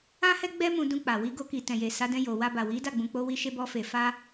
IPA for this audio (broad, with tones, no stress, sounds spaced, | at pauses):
ã˦ h ɛ˦ ɡ͡b ɛ˦ m ũ˧ d ũ˧ k͡p a˨ w i˧ ɡ o˧ k i˨ t ɛ̃˨ j e˨ s a˨˦ d ɛ̃˧ j o˨ w a˧ b a˨ w i˨˦ d a˦˨ ɡ͡b ũ˨ k͡p o˧ w i˧ ʃ e˧ b ɔ˧ f e˨ f a˧